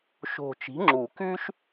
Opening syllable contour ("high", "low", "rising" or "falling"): low